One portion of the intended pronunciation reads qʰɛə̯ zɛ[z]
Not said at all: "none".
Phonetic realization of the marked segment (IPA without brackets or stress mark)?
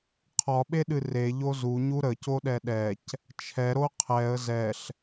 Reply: ɬ